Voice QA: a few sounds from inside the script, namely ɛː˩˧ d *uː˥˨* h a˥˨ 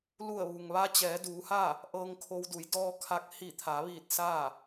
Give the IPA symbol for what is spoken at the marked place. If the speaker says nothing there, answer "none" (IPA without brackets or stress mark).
uː˩˧